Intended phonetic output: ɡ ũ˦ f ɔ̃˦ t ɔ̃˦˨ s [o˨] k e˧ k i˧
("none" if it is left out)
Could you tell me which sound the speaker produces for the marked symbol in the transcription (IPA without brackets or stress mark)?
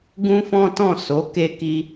o˨˦